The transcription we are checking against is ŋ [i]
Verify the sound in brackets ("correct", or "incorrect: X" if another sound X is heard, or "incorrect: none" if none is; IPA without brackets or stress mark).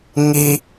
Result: correct